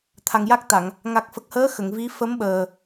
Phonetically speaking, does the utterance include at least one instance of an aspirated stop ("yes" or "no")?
yes